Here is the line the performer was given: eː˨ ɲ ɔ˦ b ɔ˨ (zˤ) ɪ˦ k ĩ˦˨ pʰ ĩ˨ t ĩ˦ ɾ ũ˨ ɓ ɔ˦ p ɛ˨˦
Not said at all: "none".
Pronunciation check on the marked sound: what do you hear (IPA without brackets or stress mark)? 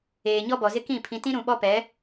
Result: z